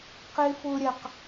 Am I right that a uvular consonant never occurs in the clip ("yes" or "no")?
no